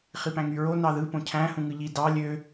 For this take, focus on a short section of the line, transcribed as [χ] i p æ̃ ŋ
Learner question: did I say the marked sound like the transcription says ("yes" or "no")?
yes